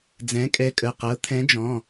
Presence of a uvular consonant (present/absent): present